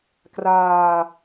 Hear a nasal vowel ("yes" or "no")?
no